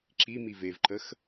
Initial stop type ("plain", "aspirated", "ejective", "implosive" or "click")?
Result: click